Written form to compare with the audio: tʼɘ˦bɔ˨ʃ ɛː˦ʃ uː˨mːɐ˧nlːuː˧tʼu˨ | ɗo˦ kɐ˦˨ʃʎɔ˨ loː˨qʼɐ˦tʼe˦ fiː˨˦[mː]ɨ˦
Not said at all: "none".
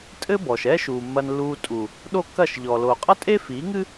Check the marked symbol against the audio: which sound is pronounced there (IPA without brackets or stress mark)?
ŋ